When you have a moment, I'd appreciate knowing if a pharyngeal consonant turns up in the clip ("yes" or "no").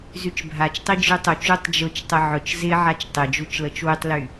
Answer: yes